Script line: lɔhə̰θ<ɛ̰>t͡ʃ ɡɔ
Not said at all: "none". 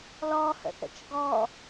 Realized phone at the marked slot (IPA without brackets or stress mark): ə̰